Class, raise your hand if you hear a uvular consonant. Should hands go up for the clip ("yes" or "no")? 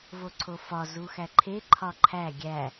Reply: no